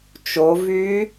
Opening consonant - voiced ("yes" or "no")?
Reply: no